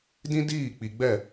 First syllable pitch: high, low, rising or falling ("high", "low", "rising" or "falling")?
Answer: high